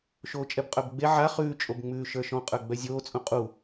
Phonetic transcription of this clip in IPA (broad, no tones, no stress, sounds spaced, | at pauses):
ʃ oː t͡ʃʼ ɛ b qʼ œ b ɡ͡b e ʕ a χ ʉː t͡ʃʼ o b ŋ͡m ʉː ʃ ə˞ ʃ ɔ̃ qʼ ə˞ ɡ͡b œ zʲ oː t͡sʼ ũ qʼ u